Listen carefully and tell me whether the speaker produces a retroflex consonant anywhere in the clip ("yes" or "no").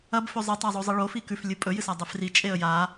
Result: yes